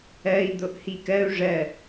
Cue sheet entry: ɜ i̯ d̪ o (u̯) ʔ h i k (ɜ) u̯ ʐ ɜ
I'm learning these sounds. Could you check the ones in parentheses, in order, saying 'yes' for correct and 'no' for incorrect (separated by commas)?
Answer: no, yes